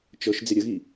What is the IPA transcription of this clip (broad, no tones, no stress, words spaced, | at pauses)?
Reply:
t͡ʃɤʃ d͡zɪɾʲəɣi